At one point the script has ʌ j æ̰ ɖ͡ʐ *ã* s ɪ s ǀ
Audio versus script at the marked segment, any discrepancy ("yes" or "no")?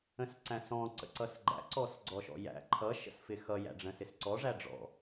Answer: yes